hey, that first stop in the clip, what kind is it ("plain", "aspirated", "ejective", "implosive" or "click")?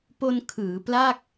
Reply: plain